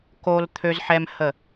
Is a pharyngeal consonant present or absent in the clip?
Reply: present